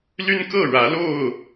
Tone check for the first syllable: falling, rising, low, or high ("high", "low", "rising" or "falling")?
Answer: high